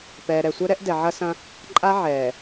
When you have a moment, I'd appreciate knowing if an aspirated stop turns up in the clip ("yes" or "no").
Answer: no